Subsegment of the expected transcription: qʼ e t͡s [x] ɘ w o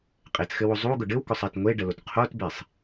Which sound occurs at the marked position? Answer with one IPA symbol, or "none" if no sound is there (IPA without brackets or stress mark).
x